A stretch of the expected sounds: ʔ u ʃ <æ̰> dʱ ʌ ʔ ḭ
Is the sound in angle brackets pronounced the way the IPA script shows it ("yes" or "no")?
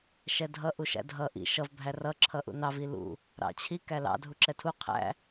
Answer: yes